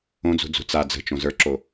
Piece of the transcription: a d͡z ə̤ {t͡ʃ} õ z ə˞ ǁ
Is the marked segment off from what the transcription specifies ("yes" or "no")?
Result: no